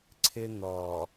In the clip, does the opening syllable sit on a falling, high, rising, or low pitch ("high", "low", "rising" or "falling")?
high